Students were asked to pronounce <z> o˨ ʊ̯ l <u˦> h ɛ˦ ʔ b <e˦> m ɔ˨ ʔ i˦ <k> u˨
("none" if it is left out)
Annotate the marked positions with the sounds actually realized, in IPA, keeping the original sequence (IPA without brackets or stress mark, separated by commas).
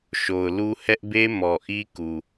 ʃ, u˦, e˦, k